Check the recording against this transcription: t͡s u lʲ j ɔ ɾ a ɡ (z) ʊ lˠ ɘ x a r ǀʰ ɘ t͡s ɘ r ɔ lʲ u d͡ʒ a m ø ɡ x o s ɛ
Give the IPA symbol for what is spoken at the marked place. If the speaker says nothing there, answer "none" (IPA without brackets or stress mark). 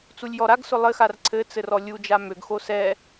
s